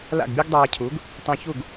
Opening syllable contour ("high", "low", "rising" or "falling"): falling